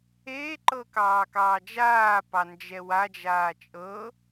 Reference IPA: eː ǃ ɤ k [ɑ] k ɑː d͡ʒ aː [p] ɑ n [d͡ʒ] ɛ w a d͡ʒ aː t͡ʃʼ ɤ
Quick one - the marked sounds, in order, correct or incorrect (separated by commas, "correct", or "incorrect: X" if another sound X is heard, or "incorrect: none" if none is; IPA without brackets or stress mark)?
incorrect: ɑː, correct, correct